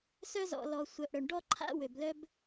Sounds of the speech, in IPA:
sœ˦zɔ̰˨lɔ˨ sʷœ˨ʔɽœ˨ɳɖɔ˦ǃʰa̰˦ wø˨blœ˦b

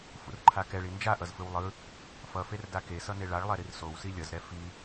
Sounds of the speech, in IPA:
fṵrǃʰakɛɭi nd͡ʒaʔʌzfɯw lˠɯ | fʌfer dakesʌ neɭaɭlˠɛ ɾirsowsi lʲʌzɾɛ fi

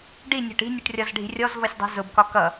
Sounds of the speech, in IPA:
ɖinʲɔ̤ʈ i̤nʲʊʈrʲɒzɖʱi̤ rʲɔz vʌsʲdˤi̤zʊbkɒ kʌ

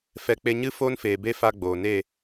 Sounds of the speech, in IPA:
fɛ˧ k͡pe˧ɲɨ˦ foː˦nfeː˨be˦ fa˦ɡ͡boː˨ neː˦˨

